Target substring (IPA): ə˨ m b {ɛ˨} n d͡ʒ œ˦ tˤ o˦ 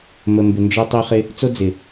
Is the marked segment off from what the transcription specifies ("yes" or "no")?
yes